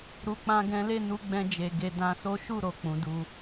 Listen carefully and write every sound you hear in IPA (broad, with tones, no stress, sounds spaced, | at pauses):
ɾ u˧ k͡p ã˦ ɡ ɛ̃˦ l e˦˨ n u˧ ɡ͡b ɛ̃˧ d͡ʒ e˨ ɡ e˧ d ã˧ s o˦ ʃ u˦˨ ɾ o˨ k͡p ũ˨˦ d u˧